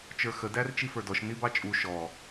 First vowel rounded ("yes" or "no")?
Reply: no